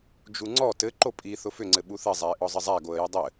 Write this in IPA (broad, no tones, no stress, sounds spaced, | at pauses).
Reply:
d͡ʒ u ŋ͡ǀ ɔ t ɘ ǃ o pʼ i θ ʊ f ʏ ŋ͡ǀ ɘ ɓ u θ ɘ zˤ æ ɪ̯ ʔ ɔ zˤ ɘ zˤ æ ɡ o ə̯ j ʊ dˤ ɘ